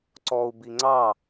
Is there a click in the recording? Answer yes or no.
yes